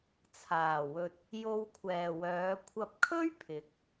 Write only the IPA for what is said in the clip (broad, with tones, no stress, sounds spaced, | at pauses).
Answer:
t͡sʰ aː˨˩ w ɵ˨ t̚ | j o˧ w kʷʰ ɛː˨ w œː˨˧ kʷʰ ɐ˧ p̚ kʰ ɵ˥ ɥ pʰ ɪ˨˥ k̚